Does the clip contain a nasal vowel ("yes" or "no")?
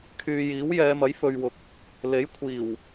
no